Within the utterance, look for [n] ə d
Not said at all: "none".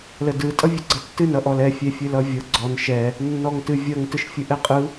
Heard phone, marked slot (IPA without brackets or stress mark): l